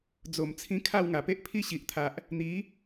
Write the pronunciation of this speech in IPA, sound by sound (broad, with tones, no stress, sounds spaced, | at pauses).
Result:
d͡z o˨˩ m t͡sʰ ĩ˧ kʰ a˥˧ w ŋ a˨˩ p e˦ ʔ pʰ i˦ ɕ i˨ ʔ t̪ʰ a˨ ʔ | n̪ i˨˦